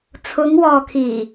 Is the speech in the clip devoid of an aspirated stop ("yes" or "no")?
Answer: no